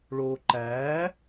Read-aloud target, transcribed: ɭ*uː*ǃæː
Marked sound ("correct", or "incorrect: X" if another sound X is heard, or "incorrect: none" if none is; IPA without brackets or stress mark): incorrect: oː